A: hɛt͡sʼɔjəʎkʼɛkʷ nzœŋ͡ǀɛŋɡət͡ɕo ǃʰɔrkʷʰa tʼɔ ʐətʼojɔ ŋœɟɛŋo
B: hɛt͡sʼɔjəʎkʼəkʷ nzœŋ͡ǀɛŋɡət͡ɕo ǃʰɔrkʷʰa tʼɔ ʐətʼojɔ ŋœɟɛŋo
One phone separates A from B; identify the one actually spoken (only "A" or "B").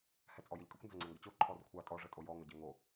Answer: B